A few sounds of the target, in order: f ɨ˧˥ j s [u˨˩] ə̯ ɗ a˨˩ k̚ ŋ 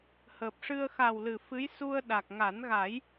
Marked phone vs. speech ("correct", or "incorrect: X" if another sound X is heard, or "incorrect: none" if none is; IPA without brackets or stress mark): incorrect: u˧